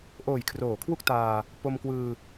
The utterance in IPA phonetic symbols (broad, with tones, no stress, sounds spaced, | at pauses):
ʔ oː˨˩ j kʰ r oː˩˦ kʰ w u˥˩ k̚ t aː˧ | p o˧ m k w ɯː˧